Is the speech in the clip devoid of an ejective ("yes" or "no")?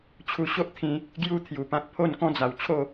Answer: yes